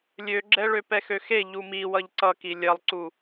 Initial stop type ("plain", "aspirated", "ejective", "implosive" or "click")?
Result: click